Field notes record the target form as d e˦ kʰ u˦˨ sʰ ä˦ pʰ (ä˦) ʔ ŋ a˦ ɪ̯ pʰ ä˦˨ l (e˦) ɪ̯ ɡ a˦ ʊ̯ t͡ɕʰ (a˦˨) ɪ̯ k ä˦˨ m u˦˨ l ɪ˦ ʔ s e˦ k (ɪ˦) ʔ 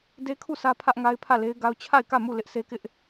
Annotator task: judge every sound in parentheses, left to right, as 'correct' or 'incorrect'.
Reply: correct, correct, correct, correct

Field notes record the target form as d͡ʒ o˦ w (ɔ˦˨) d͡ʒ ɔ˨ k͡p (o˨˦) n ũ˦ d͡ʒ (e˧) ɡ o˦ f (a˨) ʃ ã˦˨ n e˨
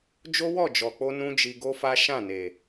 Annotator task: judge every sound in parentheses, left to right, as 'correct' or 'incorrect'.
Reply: correct, incorrect: o˧, incorrect: i˧, incorrect: a˦

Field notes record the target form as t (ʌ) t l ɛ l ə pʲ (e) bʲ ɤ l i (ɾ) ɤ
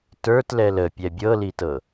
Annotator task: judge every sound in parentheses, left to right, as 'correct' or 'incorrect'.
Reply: incorrect: ə˞, incorrect: ɛ, incorrect: t

